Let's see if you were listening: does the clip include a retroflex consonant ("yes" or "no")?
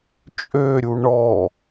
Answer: yes